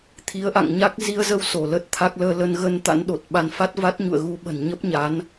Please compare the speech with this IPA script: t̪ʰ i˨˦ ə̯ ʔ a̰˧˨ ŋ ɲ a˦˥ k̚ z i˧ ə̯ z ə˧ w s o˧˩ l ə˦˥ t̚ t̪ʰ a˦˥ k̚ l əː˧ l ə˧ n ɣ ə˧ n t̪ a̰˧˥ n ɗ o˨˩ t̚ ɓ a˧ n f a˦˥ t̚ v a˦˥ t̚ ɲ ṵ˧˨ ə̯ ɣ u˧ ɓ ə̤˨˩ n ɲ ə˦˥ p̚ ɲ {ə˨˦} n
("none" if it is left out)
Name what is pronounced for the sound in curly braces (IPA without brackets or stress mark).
a˨˦